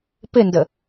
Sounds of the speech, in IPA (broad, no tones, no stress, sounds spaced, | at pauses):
p ɪ n d ə